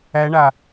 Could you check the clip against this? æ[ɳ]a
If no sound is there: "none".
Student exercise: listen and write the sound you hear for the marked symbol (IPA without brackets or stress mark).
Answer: ɳ